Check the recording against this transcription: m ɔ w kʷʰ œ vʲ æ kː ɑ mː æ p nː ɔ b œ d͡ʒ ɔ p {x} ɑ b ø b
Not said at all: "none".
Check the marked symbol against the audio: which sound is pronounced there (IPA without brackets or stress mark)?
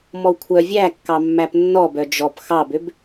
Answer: x